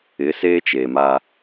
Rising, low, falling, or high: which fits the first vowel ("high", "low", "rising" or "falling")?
rising